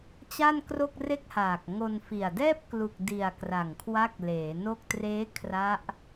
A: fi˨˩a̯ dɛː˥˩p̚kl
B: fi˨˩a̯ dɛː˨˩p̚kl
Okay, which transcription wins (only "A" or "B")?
A